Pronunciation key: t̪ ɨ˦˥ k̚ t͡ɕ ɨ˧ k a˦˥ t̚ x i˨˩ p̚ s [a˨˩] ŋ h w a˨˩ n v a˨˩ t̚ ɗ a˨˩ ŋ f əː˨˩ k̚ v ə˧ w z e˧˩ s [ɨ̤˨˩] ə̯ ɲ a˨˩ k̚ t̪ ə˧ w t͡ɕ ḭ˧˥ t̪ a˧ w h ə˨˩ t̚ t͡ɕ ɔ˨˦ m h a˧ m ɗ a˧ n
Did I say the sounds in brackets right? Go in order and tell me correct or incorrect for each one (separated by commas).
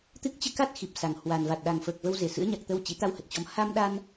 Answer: correct, incorrect